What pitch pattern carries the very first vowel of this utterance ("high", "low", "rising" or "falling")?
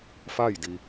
falling